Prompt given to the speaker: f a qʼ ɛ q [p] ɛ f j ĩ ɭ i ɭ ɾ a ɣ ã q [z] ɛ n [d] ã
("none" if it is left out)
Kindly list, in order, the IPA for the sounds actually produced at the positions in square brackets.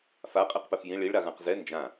p, z, d͡ʒ

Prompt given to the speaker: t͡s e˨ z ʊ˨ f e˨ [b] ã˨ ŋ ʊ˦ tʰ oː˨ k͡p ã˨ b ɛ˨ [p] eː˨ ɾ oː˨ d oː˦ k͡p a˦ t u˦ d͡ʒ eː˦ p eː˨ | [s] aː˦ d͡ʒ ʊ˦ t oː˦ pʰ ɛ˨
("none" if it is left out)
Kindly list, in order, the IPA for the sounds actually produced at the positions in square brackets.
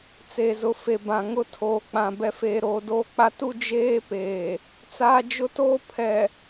b, f, t͡s

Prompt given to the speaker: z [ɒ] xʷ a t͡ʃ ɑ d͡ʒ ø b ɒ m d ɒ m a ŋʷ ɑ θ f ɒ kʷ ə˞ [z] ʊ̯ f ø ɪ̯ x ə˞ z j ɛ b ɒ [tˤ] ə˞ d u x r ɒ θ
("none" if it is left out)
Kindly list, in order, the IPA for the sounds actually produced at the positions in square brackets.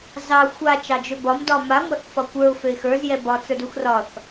ɑ, none, t͡s

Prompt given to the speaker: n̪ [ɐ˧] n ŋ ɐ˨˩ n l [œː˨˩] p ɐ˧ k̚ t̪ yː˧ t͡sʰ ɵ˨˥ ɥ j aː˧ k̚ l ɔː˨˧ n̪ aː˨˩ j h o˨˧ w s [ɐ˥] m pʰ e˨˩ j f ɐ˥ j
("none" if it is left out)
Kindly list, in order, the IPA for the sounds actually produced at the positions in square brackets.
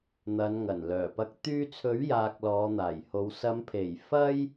ɐ˨˧, œː˨˩, ɐ˨˧

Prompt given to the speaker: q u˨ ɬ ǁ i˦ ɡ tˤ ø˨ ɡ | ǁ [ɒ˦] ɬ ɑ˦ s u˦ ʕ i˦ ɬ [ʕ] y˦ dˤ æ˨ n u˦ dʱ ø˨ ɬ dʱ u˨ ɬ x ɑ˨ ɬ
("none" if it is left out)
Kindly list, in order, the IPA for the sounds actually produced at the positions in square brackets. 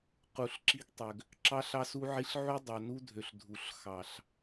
ɑ˦, ʕ

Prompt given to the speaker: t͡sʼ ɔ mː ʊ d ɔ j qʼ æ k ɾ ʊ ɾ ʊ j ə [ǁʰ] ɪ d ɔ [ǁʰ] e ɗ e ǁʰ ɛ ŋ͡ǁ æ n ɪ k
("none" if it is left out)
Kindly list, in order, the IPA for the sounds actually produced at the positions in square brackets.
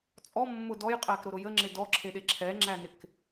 ŋ͡ǁ, ǁʰ

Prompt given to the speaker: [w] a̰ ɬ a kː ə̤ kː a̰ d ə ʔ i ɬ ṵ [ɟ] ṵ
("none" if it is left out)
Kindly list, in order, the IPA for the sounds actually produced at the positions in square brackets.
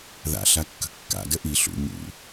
ð, ɲ

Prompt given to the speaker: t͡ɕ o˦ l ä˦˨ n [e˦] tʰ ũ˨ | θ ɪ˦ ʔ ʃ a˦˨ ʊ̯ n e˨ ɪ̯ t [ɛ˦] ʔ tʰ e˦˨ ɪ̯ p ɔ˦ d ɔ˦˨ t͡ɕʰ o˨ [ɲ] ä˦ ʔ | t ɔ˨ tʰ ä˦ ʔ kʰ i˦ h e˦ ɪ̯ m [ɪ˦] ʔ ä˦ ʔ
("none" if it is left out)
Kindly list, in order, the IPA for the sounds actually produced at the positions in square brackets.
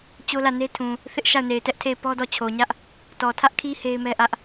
e˦, ɛ˦, ɲ, ɛ˦

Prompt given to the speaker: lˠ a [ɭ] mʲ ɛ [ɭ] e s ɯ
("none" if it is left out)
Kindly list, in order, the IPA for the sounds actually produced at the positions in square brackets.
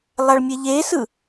ɭ, ʎ

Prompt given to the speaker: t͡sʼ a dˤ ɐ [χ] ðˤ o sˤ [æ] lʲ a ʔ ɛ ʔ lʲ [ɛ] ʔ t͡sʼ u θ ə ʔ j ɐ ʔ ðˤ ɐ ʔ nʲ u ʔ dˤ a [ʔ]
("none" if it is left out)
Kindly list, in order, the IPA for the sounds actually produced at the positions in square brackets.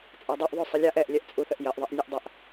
ʔ, ə, ɛ, ʔ

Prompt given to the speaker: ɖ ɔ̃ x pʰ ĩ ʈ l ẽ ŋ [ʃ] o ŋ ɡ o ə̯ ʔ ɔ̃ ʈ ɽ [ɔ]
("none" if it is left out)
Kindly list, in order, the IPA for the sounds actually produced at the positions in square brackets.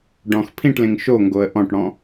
ʃ, ɔ̃

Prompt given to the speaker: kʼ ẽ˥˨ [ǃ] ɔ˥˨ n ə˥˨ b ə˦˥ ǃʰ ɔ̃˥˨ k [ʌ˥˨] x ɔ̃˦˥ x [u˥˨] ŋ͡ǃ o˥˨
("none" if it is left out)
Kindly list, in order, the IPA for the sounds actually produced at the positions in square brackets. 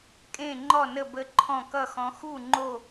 ŋ͡ǃ, ʌ˥˨, u˥˨

